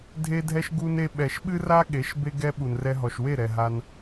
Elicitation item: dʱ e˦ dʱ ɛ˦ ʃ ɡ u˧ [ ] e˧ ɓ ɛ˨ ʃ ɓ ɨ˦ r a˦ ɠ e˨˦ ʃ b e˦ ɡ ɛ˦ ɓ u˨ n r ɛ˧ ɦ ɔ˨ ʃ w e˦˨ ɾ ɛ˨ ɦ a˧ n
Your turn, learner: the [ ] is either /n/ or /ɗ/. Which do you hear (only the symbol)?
n